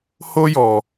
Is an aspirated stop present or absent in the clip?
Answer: absent